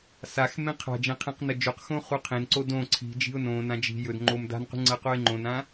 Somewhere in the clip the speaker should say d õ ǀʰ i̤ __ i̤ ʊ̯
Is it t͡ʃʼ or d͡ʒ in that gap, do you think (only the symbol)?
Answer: d͡ʒ